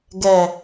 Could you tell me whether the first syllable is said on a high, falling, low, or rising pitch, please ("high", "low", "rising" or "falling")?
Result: low